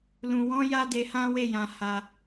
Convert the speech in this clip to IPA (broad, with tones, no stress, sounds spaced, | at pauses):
l ũ˨ w ɔ̃˨˦ j a˦ d e˧ h ã˦ w e˦˨ j ã˨ h a˧